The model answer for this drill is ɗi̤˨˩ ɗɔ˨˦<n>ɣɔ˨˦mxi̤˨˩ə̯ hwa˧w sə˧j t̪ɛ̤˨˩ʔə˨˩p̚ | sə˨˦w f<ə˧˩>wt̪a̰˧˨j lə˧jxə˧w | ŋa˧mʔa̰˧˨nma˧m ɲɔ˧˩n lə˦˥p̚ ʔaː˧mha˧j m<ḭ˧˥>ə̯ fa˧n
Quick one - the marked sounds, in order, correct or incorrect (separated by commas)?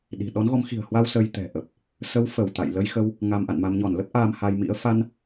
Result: correct, correct, correct